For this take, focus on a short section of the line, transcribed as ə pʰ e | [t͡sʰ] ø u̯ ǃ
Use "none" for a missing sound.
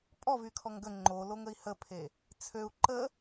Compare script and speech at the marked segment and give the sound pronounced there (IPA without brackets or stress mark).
t͡sʰ